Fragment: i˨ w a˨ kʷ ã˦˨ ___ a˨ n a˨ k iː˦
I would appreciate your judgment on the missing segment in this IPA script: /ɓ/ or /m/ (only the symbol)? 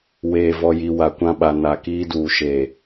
ɓ